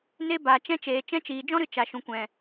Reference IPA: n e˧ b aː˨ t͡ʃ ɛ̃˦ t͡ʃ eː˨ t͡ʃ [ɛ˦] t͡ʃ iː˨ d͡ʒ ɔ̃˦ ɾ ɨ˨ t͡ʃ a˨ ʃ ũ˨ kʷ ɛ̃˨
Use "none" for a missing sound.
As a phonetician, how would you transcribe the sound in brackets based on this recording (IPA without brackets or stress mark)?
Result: ɛ̃˦